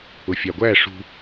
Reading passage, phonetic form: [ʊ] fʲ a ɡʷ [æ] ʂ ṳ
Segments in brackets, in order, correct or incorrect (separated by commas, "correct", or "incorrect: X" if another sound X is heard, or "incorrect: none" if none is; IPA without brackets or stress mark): correct, correct